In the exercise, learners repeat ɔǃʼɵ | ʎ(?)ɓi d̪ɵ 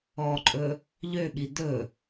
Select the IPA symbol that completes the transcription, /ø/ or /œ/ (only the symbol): ø